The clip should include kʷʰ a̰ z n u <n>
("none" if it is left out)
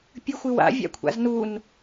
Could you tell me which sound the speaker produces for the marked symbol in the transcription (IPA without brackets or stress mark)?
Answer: n